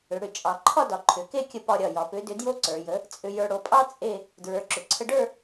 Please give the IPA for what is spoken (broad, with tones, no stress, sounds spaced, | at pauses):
ʏ˩˧ ɽ ʏ˨˩ t͡ʃʼ ɑ˨˩ ǃʰ ɒ˥˧ d ɒ˩˧ ǃʰ ʏ˩˧ k e˥˧ kʲ ə˧ p ɒ˧ ɾʲ ɒ˨˩ j ɒ˩˧ p ʏ˨˥ d ʏ˨˥ d j o˥ ǀ ə˞˩˧ j ə˨˥ | t͡sʼ ʏ˧ j ə˞˧ ɽ o˩˧ pʼ ɑ˥ t͡sʼ e˥˧ | d ɹ ə˞˨˥ ǁ ʏ˩˧ ǀʰ ə˧ ɖ ə˞˥˧